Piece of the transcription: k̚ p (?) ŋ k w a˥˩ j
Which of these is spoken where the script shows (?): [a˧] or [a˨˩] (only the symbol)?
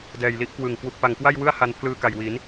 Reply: a˨˩